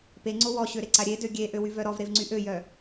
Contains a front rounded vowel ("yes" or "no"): yes